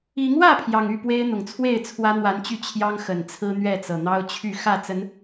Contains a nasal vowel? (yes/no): no